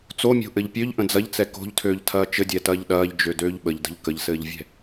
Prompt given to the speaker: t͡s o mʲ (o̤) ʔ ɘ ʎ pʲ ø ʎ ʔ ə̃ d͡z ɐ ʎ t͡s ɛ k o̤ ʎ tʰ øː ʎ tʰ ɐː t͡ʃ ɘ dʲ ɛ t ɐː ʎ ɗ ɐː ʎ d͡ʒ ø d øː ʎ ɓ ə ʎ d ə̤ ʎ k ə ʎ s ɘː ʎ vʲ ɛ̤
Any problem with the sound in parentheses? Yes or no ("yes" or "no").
no